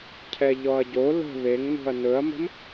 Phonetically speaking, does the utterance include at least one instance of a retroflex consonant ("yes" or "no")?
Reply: no